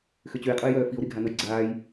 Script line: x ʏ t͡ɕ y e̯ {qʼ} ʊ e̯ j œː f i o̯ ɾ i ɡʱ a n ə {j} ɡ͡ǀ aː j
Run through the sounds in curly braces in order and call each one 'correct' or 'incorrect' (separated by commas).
correct, correct